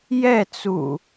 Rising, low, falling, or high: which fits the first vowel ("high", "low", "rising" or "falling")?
falling